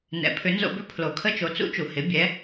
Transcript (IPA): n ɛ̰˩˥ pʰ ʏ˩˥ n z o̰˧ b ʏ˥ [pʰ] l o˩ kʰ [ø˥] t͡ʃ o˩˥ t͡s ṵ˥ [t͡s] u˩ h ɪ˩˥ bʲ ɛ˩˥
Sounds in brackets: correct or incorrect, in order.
correct, incorrect: ə˥, incorrect: t͡ʃ

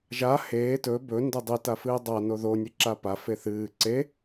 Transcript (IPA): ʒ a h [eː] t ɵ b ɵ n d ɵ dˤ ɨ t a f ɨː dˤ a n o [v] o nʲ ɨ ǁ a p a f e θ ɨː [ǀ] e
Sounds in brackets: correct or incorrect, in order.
correct, incorrect: ð, correct

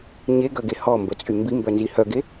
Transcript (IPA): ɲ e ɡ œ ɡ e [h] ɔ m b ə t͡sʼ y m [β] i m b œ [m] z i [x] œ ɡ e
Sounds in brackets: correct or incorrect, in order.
correct, incorrect: b, incorrect: n, incorrect: h

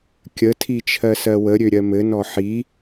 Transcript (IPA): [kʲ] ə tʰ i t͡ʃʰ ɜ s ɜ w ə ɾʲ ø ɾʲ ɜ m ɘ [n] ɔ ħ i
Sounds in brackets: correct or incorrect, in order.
correct, correct

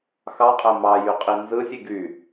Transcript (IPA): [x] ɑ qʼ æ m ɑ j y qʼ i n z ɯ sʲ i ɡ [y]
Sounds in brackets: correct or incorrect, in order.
correct, correct

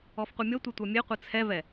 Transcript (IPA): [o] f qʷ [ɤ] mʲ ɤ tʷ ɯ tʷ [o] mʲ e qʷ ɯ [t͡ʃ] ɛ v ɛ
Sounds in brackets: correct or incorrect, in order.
incorrect: ɔ, incorrect: ɯ, incorrect: ɤ, incorrect: t͡sʰ

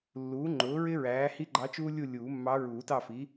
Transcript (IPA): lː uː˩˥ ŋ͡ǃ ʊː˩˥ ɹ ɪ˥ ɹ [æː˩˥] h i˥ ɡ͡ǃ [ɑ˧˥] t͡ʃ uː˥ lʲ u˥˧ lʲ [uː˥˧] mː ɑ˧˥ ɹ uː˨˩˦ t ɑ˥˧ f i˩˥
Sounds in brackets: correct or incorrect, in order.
correct, correct, incorrect: uː˨˩˦

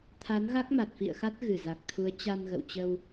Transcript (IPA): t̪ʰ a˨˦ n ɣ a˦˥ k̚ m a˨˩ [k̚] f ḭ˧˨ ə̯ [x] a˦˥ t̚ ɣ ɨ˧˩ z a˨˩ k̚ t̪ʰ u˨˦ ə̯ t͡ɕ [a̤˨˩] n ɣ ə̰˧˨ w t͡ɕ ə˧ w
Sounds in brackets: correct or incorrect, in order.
incorrect: t̚, correct, incorrect: a˧

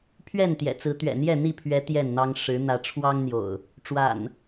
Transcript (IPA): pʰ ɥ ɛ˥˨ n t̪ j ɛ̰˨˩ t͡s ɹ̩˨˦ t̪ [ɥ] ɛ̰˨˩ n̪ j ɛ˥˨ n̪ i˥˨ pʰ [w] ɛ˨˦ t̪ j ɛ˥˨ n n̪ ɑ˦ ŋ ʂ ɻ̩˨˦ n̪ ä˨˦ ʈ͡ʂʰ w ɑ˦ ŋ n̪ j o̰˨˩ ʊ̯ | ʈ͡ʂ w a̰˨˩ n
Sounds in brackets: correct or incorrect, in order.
correct, incorrect: ɥ

